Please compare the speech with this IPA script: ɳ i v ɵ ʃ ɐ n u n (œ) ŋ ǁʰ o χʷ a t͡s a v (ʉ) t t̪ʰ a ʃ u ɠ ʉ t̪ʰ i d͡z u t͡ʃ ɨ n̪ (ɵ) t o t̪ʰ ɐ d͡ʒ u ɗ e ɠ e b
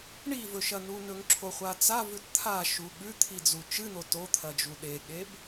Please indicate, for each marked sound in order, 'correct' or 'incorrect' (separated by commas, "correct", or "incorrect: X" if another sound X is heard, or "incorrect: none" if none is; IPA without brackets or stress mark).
incorrect: ɵ, correct, incorrect: o